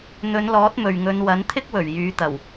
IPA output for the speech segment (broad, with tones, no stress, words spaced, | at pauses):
n̪ɵ˨˧nlɔː˨˥t̚ mɵ˨ɥŋɵ˨˧n wɐ˨˥nt̪ʰɪ˥k̚wɵ˨˩ɥ jyː˨˧t̪ɐ˨˩w